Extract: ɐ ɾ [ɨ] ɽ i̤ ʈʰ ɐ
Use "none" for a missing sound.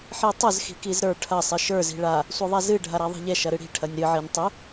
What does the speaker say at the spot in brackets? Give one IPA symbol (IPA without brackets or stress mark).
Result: ɨ